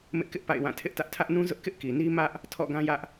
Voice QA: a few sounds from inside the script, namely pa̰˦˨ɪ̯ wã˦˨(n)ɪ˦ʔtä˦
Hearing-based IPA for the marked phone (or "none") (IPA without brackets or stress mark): tʰ